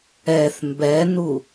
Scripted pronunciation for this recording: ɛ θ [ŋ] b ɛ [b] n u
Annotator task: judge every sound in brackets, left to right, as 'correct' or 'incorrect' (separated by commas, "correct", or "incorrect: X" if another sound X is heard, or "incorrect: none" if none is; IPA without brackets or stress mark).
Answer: incorrect: m, incorrect: none